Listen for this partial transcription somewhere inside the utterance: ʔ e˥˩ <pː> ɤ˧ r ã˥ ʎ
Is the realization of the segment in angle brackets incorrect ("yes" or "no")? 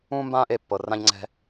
no